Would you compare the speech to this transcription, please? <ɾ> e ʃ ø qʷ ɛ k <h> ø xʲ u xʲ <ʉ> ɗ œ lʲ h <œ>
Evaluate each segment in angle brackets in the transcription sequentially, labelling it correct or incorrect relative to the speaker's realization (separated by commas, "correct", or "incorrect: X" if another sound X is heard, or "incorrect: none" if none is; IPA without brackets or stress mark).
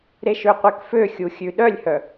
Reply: correct, incorrect: f, correct, correct